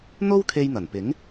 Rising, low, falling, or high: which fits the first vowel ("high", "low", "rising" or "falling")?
high